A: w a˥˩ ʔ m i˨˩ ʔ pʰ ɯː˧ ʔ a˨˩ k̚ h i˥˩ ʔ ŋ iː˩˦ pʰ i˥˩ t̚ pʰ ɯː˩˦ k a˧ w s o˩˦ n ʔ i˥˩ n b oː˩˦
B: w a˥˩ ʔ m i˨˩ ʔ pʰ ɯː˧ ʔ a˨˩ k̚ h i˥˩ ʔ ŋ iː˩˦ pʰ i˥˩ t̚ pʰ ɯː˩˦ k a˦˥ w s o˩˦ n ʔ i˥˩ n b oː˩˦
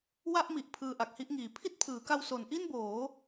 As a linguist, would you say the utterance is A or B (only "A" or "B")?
A